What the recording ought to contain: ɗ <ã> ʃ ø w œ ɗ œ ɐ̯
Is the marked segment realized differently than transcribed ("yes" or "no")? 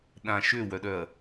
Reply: no